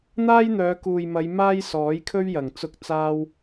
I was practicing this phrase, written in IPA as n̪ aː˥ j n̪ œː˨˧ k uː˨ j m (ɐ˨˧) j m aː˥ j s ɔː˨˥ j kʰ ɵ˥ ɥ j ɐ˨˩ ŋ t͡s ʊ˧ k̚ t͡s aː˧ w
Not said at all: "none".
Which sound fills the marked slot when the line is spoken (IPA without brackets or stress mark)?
ɐ˨˧